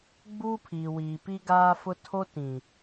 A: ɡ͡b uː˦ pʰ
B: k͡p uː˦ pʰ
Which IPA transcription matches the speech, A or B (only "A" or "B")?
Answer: A